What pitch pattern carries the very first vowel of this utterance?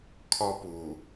high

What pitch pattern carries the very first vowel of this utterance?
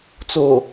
low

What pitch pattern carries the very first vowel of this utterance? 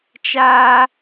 high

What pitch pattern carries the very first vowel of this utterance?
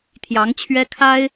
rising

